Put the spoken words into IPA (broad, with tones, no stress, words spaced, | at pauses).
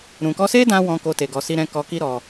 ɾũ˨kɔ˧se˦dã˧ wɔ̃˦ko˦te˧ ɡɔ˧si˦ɾɛ̃˦ kɔ˧ki˦ ɾɔ˧